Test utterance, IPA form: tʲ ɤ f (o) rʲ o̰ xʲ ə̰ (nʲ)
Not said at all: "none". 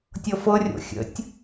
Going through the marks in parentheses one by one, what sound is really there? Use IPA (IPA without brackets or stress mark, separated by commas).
ɤ, tʲ